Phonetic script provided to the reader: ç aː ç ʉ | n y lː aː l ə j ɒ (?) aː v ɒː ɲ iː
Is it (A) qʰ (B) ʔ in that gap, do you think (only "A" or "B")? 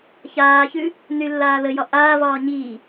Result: B